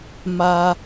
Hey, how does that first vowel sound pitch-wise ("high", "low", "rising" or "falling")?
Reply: low